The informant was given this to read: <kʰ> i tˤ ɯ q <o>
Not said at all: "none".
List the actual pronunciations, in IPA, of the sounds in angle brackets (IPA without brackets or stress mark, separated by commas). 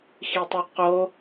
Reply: x, o